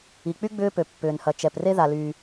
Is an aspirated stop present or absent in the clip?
absent